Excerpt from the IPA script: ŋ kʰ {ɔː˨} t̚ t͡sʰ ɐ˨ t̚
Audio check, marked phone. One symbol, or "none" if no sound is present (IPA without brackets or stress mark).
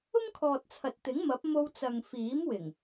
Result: ɔː˨